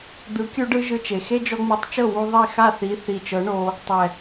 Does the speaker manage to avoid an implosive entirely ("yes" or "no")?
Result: yes